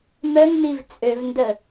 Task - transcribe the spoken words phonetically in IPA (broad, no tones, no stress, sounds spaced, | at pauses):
m œ ŋ n i v t͡sʼ ø v n d ə